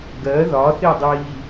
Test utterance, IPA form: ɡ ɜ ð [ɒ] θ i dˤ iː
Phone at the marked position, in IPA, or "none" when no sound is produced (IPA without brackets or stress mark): ɒ